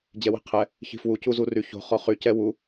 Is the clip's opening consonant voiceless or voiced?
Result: voiced